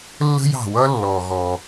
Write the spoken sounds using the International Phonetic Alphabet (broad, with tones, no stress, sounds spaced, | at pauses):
lː ə̤˥ j ɑ̤˩ w ʌ˥ lː ɔ˩ ɣ ɔ˩